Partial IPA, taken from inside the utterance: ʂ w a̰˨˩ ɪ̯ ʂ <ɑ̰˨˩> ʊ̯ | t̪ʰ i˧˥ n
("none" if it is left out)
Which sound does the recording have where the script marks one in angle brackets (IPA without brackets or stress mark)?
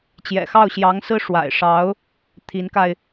ɑ˧˥